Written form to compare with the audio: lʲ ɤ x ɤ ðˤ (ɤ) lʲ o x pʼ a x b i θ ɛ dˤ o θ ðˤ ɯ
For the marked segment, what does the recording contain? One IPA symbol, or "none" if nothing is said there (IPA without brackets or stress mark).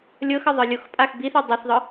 ɯ